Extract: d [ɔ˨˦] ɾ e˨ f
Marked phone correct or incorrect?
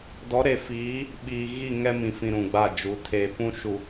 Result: correct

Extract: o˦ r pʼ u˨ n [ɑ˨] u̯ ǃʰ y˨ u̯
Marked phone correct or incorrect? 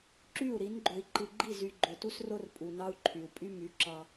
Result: incorrect: ɑ˦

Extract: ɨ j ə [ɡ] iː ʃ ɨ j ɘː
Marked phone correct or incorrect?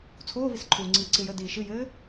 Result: incorrect: d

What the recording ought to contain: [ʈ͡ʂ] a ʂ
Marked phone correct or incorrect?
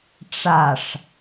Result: correct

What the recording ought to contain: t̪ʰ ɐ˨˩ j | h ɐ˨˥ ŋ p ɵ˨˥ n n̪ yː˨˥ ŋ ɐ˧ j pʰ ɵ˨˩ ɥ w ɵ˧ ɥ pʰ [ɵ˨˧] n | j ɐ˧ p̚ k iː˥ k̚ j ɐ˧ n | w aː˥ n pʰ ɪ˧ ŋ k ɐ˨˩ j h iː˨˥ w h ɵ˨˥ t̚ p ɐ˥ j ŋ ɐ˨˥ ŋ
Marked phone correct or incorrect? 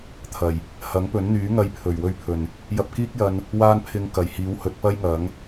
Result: incorrect: ɵ˨˩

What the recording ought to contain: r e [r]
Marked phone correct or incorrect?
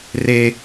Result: incorrect: none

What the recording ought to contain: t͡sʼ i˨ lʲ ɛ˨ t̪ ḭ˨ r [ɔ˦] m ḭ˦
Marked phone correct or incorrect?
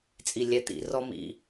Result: correct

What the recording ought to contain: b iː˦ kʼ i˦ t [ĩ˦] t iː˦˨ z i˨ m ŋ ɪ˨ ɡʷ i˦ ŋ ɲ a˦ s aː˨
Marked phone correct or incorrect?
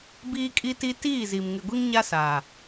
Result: incorrect: i˦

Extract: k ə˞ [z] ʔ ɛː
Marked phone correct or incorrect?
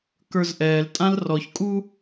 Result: correct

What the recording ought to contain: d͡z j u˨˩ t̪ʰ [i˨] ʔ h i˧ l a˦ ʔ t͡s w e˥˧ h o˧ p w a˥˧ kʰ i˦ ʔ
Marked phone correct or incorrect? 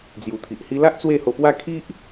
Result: correct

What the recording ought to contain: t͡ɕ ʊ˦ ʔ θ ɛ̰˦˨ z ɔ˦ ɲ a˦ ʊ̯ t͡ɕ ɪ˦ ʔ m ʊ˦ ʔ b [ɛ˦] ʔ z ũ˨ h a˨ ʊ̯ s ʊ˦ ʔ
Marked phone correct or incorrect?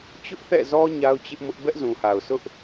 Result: correct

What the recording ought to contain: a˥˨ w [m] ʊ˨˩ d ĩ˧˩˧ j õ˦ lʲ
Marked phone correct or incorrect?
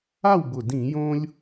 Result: incorrect: b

